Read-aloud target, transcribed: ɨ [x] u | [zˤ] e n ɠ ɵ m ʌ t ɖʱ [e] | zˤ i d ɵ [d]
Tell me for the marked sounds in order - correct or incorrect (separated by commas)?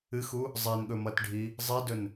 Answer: correct, correct, incorrect, incorrect